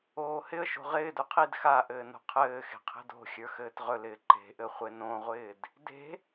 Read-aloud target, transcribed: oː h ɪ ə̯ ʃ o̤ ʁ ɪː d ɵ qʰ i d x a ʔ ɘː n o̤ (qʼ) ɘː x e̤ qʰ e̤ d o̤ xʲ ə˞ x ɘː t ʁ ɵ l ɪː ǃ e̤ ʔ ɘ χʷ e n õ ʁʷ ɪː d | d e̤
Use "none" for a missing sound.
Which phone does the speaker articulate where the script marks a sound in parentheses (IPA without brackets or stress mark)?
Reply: qʰ